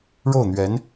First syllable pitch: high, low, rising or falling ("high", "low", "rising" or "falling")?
falling